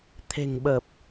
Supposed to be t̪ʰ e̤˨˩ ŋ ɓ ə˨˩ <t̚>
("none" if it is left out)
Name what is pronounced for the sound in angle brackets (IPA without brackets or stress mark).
p̚